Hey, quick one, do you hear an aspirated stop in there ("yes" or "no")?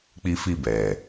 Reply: no